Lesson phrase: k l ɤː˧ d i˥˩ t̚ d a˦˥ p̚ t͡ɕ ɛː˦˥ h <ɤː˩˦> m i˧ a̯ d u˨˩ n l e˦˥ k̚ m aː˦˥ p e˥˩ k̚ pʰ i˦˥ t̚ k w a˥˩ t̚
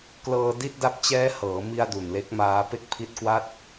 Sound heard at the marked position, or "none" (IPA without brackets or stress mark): ɤː˩˦